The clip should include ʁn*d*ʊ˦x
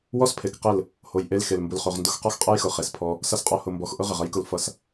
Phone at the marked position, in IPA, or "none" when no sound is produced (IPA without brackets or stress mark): d